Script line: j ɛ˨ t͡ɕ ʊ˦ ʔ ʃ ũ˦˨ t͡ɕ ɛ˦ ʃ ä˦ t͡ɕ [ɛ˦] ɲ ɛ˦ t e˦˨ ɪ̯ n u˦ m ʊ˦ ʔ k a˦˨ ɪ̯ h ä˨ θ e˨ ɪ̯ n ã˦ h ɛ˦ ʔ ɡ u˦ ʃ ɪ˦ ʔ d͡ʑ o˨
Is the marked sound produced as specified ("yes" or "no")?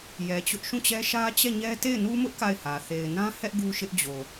no